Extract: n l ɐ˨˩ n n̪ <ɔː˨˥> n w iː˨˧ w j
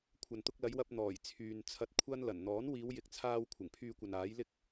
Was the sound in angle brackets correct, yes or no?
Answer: yes